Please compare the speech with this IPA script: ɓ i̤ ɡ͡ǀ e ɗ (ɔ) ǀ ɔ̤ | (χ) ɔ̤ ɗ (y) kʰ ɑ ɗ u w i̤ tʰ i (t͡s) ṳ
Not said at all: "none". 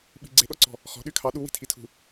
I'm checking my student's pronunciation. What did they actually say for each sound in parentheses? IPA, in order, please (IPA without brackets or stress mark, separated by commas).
ɔ, χ, y, tʰ